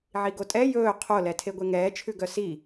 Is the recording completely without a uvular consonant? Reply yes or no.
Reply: no